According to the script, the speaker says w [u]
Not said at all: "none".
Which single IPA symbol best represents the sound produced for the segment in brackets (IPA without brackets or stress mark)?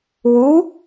u